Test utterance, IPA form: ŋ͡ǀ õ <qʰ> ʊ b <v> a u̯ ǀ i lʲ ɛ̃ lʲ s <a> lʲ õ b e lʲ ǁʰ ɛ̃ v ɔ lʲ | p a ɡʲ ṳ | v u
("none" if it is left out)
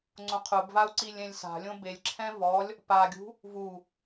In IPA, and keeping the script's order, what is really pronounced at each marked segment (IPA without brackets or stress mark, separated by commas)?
qʰ, v, a̤